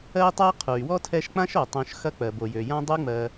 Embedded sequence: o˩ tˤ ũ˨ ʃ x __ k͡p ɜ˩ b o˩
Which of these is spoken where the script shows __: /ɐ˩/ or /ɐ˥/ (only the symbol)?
ɐ˥